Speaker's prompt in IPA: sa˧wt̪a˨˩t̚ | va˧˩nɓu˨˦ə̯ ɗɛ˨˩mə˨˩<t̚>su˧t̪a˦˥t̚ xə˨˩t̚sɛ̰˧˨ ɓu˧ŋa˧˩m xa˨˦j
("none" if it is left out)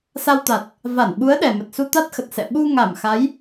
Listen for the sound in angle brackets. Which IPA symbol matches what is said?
t̚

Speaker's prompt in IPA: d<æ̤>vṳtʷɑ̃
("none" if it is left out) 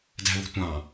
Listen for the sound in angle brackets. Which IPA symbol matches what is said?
æ̤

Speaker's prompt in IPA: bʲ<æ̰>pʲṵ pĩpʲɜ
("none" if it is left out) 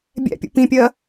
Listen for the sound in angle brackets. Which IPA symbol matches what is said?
æ̰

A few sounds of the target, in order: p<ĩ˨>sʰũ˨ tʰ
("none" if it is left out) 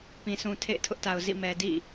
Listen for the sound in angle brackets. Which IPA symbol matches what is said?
ĩ˨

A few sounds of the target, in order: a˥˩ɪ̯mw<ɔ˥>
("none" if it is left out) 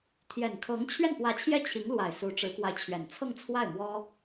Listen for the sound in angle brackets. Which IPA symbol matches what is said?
ɔ˥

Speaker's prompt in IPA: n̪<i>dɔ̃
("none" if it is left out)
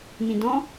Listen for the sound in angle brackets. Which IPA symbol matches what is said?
ĩ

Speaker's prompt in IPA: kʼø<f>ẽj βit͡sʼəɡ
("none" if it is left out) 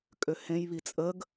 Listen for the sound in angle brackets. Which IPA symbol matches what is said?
h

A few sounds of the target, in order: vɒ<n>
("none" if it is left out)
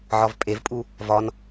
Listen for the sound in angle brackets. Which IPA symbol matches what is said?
n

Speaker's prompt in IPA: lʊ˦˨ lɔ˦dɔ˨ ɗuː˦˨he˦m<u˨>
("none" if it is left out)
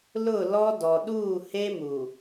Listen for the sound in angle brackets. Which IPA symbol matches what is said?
u˨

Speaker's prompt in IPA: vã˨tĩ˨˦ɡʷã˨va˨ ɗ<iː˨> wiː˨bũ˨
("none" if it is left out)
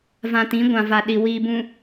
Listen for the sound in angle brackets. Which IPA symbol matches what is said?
i˨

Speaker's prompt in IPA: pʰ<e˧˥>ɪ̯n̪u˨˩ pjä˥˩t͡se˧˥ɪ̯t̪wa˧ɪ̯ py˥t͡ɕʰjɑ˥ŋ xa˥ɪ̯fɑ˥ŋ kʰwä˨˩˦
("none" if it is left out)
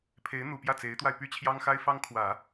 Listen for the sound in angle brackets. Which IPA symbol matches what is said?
e˧˥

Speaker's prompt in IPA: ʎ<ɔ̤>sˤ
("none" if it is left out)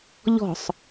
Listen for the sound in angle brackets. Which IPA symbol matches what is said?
ɔ̤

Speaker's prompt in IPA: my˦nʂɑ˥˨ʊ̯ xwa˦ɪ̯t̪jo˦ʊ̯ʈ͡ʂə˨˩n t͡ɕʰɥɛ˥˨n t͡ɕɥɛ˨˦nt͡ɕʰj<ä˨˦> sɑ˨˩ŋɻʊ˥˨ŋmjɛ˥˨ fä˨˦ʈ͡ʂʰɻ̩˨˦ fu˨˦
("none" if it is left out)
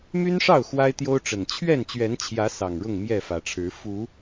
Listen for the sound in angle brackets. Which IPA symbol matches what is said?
ä˨˦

